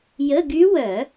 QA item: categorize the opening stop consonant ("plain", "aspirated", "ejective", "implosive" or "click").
plain